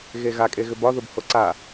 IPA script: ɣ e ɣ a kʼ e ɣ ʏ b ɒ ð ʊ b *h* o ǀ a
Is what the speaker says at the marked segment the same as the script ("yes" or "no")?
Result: yes